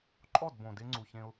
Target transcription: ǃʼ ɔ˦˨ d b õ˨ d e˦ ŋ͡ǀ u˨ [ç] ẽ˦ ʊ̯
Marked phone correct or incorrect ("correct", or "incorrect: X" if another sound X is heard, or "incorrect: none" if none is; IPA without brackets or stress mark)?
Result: correct